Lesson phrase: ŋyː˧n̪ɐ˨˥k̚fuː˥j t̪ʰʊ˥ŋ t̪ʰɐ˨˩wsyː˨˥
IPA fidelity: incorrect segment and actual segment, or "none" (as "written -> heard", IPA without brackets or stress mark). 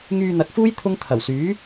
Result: none